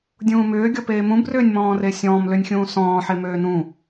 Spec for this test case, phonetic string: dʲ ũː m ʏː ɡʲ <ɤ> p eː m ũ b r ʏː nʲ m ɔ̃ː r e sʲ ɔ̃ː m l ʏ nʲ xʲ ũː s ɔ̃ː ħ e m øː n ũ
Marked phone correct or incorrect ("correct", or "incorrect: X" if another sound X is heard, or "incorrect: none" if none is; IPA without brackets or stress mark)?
incorrect: ɔ